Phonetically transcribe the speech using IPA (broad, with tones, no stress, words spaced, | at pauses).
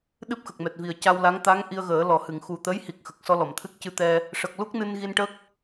ɗɨ˦˥p̚ xə˨˩k̚mɛ˨˩t̚ vi˨˩ə̯ca˧wla˧˥ŋ t̪a˧˥ŋ ʔi˧ə̯ɣəː˨˩˦ lɔ˨˩˨hɨ˨˩˨ŋ xu˨˩t̪ə˧˥jhi˨˩k̚ xə˨˩k̚sɔ˧lɔ˨˩˨m t̪ʰɨ˦˥k̚cɨ˧t̪ɛ˧ | ʂə˨˩k̚lu˦˥k̚ nɨ˧nɣi˧nʈə˦˥k̚